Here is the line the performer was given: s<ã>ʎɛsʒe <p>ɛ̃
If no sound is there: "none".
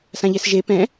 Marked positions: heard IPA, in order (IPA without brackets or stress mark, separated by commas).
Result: ã, p